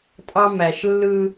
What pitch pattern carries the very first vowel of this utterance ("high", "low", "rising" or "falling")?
high